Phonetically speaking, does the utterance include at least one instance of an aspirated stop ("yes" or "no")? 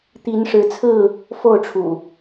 yes